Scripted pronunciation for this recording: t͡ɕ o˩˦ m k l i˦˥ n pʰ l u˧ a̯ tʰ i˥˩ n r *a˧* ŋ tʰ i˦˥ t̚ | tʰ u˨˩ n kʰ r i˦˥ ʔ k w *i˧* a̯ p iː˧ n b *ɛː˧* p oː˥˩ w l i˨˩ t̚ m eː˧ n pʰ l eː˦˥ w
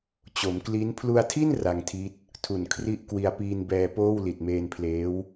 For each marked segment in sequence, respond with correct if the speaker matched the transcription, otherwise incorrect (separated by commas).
correct, correct, correct